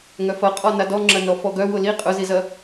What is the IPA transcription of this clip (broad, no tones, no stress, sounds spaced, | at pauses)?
ŋ œ f ɐ qʼ ɔ n a d ɔ ŋ͡ǁ ɐ n ɔ f ɔ ɡ œ w ʊ l i qʼ ʊ z i z ɐ